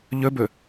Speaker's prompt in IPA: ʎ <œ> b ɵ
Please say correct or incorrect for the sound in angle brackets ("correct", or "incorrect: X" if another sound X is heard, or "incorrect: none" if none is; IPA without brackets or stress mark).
incorrect: ɵ